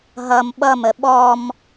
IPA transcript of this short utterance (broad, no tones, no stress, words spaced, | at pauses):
ɦʌm ɓʌmə ɓɔm